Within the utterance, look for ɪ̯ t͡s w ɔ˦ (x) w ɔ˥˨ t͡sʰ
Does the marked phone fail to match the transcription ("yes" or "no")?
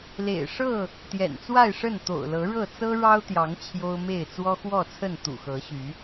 no